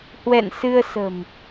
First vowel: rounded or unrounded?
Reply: unrounded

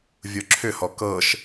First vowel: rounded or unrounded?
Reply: rounded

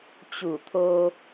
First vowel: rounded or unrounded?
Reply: rounded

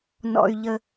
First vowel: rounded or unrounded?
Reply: rounded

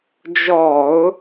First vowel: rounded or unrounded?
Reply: rounded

